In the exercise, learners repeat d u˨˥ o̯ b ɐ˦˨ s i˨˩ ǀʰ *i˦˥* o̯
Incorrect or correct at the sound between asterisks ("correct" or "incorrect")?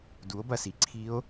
correct